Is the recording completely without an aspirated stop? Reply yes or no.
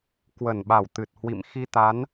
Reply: yes